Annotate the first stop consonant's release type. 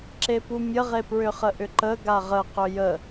click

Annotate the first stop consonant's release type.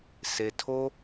aspirated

